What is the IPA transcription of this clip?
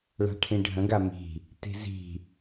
ɭ a̤ ʈʰ ĩ ɖʱ ə̃ ɡ a m i̤ | t i̤ z i̤

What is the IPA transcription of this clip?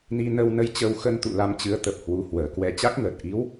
n i˧ n ə˧ w n ə˧ j t͡ɕ ə˧ w x ə˧ n t̪ ṵ˧˨ l a˧ m t͡ɕ ɨ˨˦ ə̯ t̪ ə˨˩ p̚ h w u˨˦ h w əː˨˩ k w ɛ˧ t͡ɕ a˦˥ k̚ ŋ əː˨˩ t̚ ʔ i˨˦ w

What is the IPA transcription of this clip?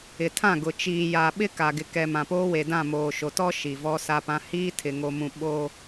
ɪ˨ tʰ ã˦˨ ɡ ʊ˨ t͡ʃ iː˨ j a˨ ɓ ɪ˦ k a˨ ɡ ɪ˨ k ɛ˨ m ã˨ p oː˦ w e˨ d ã˦˨ m oː˨ ʃ o˨ t ɔ˦ ʃ i˨ v ɔ˦ s a˦ p ã˦ h iː˦ tʰ ɪ˨ ŋ o˨ m ũ˨ ɓ o˦

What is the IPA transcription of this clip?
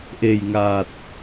ʔ e˨˩ j ŋ aː˨˩ t̚

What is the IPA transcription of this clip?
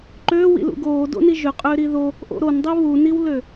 ǃ øː w ḭ l ṵ ɡ oː d o̰ n i ʒ ʏ qʼ ʏː ɾ i ð o | ʔ o̰ ɾ o n dˤ i β u n i w l ø

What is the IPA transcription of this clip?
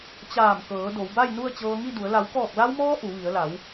t͡ɕ aː˧˩ m k ɤː˩˧ d o˩˧ w b a˥˨ j n u˥˨ ə̯ t͡ɕ ɤː˧ ŋ i˥˨ d u˩˧ ə̯ l a˩˧ w k ɔː˧˩ k̚ l a˧ w m ɔː˧ ʔ u˩˧ ʋ i˩˧ ə̯ l a˩˧ w

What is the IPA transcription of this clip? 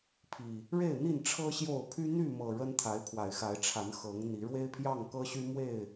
pʰ i˨˩ | ɻ e˥˨ ɪ̯ n̪ i˥˨ n ʈ͡ʂʰ ɤ˦ ɕ j o˥˨ ʊ̯ pʰ y˦ n̪ y˥˨ m ɤ˨˩ ɻ ə˦ n t̪ʰ a˨˦ ɪ̯ pʰ w a˨˩ ɪ̯ x a˨˦ ɪ̯ ʈ͡ʂʰ a˨˦ n x ɤ˨˦ ŋ n̪ i˨˦ ɻ w e˦ ɪ̯ pʰ j ɑ˥˨ ŋ k ɤ˦ ɕ y˦ m w e˥˨ ɪ̯

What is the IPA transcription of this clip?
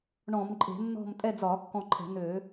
ɳ ɔ̃˧˩˧ m ǃʼ e̤˧˩˧ nː ɔ̤˦˨ m tʼ ɛ˦˨ d͡z ɒː˧˩˧ kː ɔ̃˦˨ ǃʰ ɛ̤˧˩˧ n̪ øː˧˩˧

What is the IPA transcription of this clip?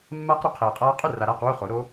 mː aː˦˥ q ɾ u˩˥ qʰ eː˨ qʼ aː˦˥ qʼ u˥˩ r a˨ ɾ aː˥˩ q w u˥˩ χ o˩˥ ɾ o˦˥

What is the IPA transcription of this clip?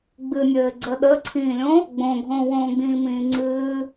ɡ͡b ɨ nʲ ɘː ɡ͡ǀ əː ɗ əː ǀʰ ĩː lʲ õ | ɡ͡b õ ɡʱ õː w õː ɡ͡b ĩː m ĩː ŋ͡ǀ ɨː

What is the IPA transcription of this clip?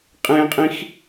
qʼ ẽ qʼ ĩ x

